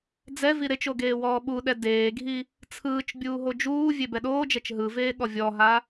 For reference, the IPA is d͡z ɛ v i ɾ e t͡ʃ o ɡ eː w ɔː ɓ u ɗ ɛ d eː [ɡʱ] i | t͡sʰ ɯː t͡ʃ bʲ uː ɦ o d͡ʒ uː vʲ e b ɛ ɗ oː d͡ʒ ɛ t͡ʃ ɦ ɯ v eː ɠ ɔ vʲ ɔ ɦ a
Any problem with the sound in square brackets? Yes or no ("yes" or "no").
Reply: no